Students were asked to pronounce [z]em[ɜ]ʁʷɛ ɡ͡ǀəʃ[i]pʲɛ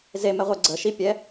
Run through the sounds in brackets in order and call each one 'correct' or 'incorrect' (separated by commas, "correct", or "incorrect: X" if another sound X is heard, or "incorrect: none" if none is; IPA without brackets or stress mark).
correct, incorrect: ɛ, correct